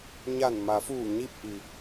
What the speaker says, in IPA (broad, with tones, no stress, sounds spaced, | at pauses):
ɲ a˧˩ n m a˩˧ f uː˧˩ ɲ i˥˨ p̚ ʔ i˩